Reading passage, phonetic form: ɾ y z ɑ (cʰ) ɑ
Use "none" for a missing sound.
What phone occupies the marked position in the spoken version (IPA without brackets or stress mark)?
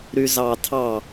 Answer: tʰ